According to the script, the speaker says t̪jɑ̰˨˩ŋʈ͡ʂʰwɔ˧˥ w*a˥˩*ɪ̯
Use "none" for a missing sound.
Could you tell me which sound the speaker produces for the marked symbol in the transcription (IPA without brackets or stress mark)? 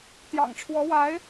a˧˥